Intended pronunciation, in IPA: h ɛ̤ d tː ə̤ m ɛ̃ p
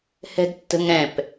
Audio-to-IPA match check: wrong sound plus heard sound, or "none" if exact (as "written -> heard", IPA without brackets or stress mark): m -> ŋ